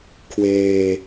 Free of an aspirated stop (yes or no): no